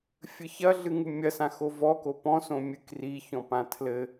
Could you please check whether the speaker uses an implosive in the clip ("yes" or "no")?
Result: no